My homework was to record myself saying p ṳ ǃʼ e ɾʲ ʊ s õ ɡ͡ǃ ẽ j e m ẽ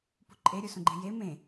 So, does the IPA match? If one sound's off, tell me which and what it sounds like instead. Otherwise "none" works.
ʊ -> u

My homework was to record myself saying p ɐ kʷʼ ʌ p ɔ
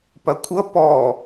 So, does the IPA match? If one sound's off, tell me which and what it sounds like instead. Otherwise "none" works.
none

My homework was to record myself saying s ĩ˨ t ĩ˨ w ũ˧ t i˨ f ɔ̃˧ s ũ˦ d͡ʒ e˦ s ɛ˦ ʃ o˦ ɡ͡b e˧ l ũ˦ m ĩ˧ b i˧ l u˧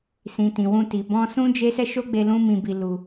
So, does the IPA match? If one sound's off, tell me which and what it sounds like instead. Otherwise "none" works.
f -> b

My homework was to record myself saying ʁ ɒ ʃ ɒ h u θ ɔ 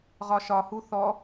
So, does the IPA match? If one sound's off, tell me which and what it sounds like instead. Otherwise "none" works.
none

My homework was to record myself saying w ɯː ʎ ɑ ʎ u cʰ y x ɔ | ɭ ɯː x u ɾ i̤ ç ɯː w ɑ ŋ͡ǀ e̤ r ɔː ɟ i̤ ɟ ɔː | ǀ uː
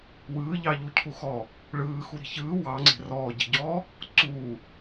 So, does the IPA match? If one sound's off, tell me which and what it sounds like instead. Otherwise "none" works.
y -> u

